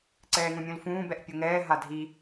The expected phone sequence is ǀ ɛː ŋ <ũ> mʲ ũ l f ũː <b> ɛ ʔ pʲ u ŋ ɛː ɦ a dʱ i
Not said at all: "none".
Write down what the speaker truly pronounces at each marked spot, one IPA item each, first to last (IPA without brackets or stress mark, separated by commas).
ũ, b